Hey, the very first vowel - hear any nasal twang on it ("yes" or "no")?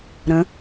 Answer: yes